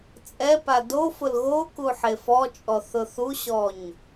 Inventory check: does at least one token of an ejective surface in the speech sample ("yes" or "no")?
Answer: yes